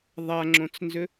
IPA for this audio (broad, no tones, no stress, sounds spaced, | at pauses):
ðˤ a ŋ͡ǁ õ t͡s n z ʏ